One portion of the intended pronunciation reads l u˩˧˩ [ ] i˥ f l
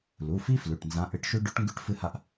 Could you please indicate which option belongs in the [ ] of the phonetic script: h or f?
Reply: f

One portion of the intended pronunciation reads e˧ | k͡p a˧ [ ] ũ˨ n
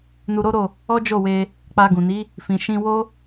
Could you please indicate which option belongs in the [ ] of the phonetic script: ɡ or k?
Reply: ɡ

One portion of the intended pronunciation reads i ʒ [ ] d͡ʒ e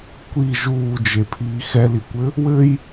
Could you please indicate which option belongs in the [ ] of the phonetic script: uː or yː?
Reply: uː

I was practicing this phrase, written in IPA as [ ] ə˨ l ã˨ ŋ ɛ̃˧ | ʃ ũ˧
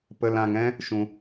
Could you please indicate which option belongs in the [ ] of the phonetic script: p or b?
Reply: p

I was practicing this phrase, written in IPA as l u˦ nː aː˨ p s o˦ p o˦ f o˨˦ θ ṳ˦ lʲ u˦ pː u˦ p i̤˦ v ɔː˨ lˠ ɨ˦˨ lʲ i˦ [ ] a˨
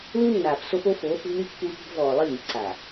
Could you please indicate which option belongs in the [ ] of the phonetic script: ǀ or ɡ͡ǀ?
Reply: ǀ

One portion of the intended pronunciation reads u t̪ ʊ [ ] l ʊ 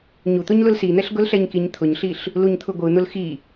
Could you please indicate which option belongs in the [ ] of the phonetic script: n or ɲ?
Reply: ɲ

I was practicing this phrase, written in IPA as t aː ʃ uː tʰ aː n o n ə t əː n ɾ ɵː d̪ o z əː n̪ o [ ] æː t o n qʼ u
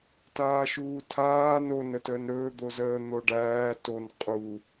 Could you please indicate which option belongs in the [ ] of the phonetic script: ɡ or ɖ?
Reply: ɖ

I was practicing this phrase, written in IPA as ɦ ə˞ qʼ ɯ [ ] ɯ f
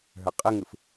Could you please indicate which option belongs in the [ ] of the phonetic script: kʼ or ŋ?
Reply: ŋ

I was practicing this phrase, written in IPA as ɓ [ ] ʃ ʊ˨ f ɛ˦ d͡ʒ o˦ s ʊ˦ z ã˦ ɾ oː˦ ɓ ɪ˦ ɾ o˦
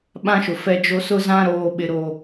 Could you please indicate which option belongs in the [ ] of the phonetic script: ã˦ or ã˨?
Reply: ã˦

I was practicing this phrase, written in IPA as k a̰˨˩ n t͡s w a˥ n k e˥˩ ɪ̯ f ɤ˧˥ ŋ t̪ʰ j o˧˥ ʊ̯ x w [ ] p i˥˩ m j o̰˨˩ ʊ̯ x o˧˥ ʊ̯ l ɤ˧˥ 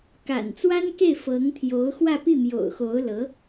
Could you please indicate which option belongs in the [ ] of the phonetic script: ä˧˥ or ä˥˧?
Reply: ä˥˧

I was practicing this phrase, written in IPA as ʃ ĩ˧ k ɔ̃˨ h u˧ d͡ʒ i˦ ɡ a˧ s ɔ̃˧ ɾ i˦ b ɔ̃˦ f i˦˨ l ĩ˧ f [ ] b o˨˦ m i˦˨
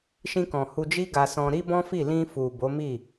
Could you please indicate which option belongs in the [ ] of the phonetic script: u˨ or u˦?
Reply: u˨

